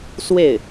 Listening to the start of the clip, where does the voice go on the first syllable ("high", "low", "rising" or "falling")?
falling